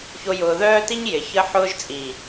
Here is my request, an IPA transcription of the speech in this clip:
ç o˦ j ʊː˧ ð œː˦ t i˦ ɲ j ɪ˨ ç ə˦ ħ ʊː˦ ʒ t͡sʼ i˨

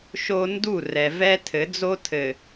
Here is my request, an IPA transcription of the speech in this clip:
ʃ o˦ n d u˦˨ r ɛ˨ v ɛ˦ tʰ ɘ˨˦ d͡z o˦ tʰ ɘ˨

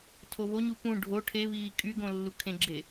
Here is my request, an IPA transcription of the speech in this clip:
tʰ o β o ɲ u p ũ ɖʱ o ʈʰ e β iː kʼ y ɡ õ lː u kʰ ẽ ɡ͡ǁ e

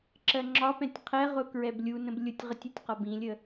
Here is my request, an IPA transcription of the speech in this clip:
ǁ ɜ ŋ͡ǁ ɒ p ɛ̃ tʲ qʰ ɛ ʁ ʊ k ɹ ɛ b lʲ u n ə̃ b lʲ ʊ tʲ ʁ ə tʲ ə tʲ q ɒ b ĩ lʲ ə

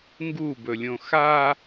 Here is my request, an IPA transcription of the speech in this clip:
ŋ ɡ u b ɵ lʲ õ x a

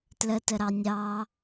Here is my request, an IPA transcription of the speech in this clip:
t l ə t ə ɾ ɑ nʲ ɑ

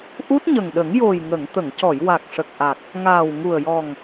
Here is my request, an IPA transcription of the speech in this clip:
ʔ u˦˥ t̚ ɲ ə˨˩ ŋ ɗ ə˨˩˦ ŋ j o˨˩ j ŋ ə˨˩˨ ŋ t̪ ə˨˩˨ ŋ c ɔ˨˩˨ j w a˨˩ k̚ ʂ ə˨˩ k̚ ʔ a˨˩ k̚ | ŋ aː˨˩ w ŋ u˨˩ ə̯ j ɔ˨˩ ŋ

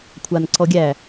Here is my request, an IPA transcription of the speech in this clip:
kʷʰ a n ǀ ɔ ɡʲ æ

